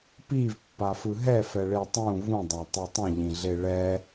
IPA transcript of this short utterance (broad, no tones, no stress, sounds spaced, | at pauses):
p i v pː a f ɯ ɦ ɛ f ɛ ɭ e tˤ ũ v ũ dˤ a tˤ ɛ tˤ ĩ ʎ ĩ ɮ e ɭ ɛ